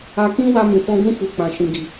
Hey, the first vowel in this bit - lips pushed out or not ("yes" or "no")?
no